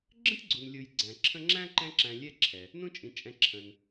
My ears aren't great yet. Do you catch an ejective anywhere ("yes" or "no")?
yes